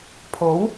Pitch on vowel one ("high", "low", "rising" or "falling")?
rising